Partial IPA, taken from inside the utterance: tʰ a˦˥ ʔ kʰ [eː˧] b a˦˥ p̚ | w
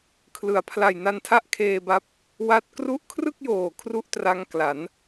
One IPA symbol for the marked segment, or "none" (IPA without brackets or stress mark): eː˧